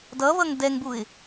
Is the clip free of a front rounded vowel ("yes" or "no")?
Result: yes